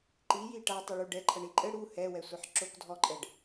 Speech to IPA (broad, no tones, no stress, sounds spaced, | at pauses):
ǃ i j i ʈ a tˤ ɨ ɭ u ɖ ɛ ǃʰ ɐ ɳ i ǃʼ ɘ ɽ u h ɛ w ɛ sʷ e ħ ǁ o k dʱ ɔ ǃʼ ɛ ɖ